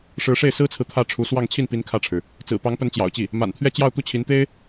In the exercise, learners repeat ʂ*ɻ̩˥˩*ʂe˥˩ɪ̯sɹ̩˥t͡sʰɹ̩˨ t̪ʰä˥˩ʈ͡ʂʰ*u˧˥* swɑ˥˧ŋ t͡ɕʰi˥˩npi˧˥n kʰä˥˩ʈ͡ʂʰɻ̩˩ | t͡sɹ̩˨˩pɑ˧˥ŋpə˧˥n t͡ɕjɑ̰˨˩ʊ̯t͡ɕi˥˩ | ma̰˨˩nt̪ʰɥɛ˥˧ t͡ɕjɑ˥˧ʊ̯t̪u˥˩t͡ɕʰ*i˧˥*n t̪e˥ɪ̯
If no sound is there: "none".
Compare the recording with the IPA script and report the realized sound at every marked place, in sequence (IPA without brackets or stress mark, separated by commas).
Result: ɻ̩˧˥, u˧˥, i˧˥